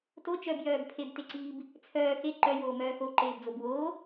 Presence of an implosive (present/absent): absent